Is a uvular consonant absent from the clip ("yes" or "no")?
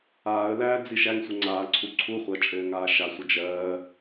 no